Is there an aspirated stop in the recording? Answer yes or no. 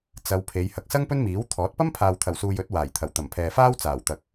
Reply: yes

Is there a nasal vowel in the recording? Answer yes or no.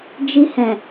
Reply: yes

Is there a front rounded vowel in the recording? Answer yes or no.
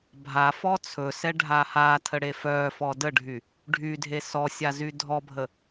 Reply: yes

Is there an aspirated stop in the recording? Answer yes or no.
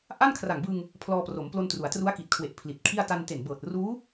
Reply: yes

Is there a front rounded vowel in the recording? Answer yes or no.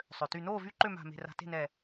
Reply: yes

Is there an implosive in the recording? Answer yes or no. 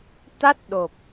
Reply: yes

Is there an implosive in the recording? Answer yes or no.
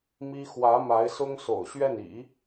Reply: no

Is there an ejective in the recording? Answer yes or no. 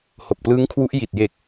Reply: no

